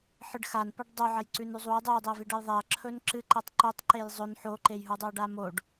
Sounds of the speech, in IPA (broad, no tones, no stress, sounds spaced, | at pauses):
ħ ɨ ɖ x a n p o ɖ dˤ ɵ ʕ ɐ j ǀ ʉ n ʉ zˤ u j dˤ ɨ j dˤ e v i ɖ ɐ j ðˤ e ɐ̯ ǁʰ ɵ n ǁ ɨ ǃ e tˤ ǃ ɵ tˤ ǃ e j zˤ ɵ n ħ o ǃ e j ɦ u dˤ o ɖ a m o ɖ